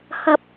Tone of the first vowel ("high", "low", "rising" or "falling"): high